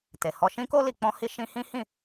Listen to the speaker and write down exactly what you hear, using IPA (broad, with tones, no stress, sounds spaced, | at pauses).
t e˨ h ɔ˧ ʃ ĩ˦ k o˦ l i˧ k͡p ɔ̃˦ h i˦ ʃ ĩ˦ h ĩ˦ h ĩ˦˨